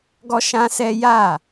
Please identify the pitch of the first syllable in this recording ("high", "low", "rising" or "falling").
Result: high